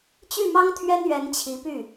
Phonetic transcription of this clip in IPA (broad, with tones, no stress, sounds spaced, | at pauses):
t͡ɕ y˥˩ m ɑ˥ ŋ t̪ʰ ɥ ɛ˥ n ɥ ɛ˧˥ n t͡ɕʰ i˧˥ p y˥˩